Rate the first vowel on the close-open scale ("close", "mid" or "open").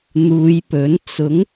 close